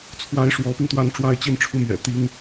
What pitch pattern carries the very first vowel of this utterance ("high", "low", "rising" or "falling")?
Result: rising